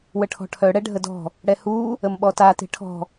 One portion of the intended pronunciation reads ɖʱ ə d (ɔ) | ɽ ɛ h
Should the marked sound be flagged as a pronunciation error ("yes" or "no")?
yes